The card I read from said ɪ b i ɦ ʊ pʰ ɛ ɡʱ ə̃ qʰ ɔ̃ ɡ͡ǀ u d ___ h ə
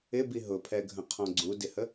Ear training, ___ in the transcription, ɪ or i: ɪ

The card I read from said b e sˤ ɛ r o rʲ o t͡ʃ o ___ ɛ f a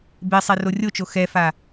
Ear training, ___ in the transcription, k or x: x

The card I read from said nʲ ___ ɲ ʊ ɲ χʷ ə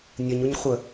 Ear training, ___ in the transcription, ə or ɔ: ə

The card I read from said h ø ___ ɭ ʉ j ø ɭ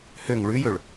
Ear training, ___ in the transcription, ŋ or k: ŋ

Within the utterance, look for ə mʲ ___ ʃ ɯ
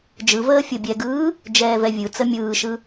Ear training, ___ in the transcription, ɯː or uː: ɯː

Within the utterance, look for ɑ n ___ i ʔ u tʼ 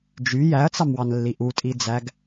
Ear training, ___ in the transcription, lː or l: lː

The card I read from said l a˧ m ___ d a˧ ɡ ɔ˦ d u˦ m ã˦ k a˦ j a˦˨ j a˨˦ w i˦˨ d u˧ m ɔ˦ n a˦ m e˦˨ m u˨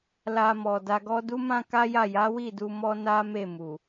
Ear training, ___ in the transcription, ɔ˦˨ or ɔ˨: ɔ˨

